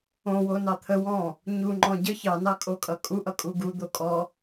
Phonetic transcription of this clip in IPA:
õ w o n ɑ t̪ʰ ə w ɔ̃ | ɲ u ŋ͡ǃ ɔ̃ ɟ ə ç ɑ n ɑ kʼ o kʼ ʌ kʼ u ʔ ʌ kʼ u ɡ u d̪ o kʼ ɔ

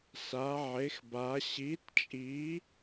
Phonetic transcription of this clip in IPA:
s a˨˥ ʕ e˨˥ x b a˨˥ ɕ i˨˥ t t͡ʃʼ i˨˥

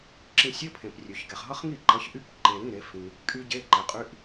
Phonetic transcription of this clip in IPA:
ǁ ĩ˧ sʲ ɘ˧˥˧ pʰ ẽ˧ p rʲ ø˧ ç ɡ ɛ˧ χ ɦ ʌ˦˥ χ ŋ i˥˩ ǃ ʌ˨˥ ç ʔ y˧˥˧ p ǃ e˧ ɾ ĩ˧˥˧ ɾ e˨˥ f ĩ˧ | kʼ y˦˥ ɟ e˧˥˧ ǃ ɛ˧ qʼ y˧˥˧ ʔ

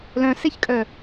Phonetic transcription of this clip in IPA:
l œ̃ s e ç kʼ œ

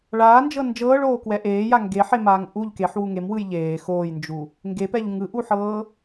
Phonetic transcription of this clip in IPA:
ɭ aː n d͡ʒ ɤ n d͡ʒ ɤː ɭ oː k w ɛ ʔ eː j a ŋ ɡ e ħ e m aː ŋ ʔ u ʎ k e ħ w u ŋ e m w ɯ j ʎ eː x oː j n d͡ʒ u | ŋ ɡ e p ɛ ʎ ŋ ɯ ʔ u ħ ɤː

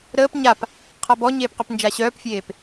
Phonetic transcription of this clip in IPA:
ɾ əː p ɲ a p | qʰ a b ɔ ɲ eː p q ø p n d͡ʒ a ɕ œː p fʲ eː p

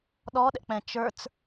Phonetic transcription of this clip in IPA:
ɗ ɔ ɗ ɛ̰ k͡p ɛ̃ t͡ʃ ə˞ t͡s

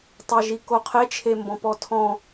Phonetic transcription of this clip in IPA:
tˤ ɑ ʒ i k o qʰ e t͡ʃʰ e m b ɔ̃ p ɔ tʰ ɔ̃

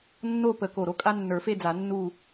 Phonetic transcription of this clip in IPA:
nː o˥˨ p ə˨˩˦ k o˧˩ ɾ o˥˨ kʼ a˦ nː ə˞˨˩˦ f e˥˨ d͡z a˨˩˦ nː u˥˨

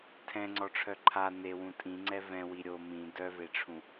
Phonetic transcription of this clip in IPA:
tʰ ɛ̃ ŋ͡ǀ ɔ ʈ͡ʂʰ œ ǃʰ a n e w ũ tʼ ĩ ŋ͡ǀ ɛ v ɛ̃ w i ɾʲ o m ĩ d œ v e ʈ͡ʂʰ ũ

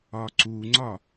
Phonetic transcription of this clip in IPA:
ɒ ǀ u ŋ͡ǀ ɒ

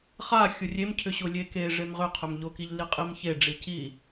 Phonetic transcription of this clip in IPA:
χ a xʲ ʊ rʲ e m cʰ ʏ ɕ ʊ lʲ e k e ʐ e m ʁ ʏ qʰ ʏ m ʎ ʊ k i ʎ l i qʼ i m ç e ɖ͡ʐ i c i

